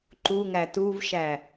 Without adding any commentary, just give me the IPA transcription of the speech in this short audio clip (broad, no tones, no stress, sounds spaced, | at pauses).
ǃ u ŋ æ t u v ʃ æ